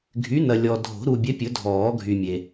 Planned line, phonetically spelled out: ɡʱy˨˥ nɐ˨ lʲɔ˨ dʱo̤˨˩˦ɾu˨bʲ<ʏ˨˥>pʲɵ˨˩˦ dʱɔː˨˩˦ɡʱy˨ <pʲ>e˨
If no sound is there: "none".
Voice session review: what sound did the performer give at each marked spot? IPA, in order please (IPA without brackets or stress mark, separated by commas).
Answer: ɛ˨˥, mʲ